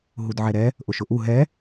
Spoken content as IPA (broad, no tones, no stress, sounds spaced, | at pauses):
ɦ u d ʕ ɛ ɾ ɛ | ʔ ʊ ʃ ʊ ʔ u ɦ ɛ